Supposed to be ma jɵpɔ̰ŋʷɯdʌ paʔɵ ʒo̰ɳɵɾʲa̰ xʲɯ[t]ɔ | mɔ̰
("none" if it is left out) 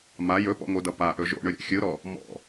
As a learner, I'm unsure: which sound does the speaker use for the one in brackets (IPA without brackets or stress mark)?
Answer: ɾ